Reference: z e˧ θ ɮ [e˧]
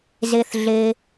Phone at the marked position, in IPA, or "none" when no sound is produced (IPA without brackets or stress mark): e˧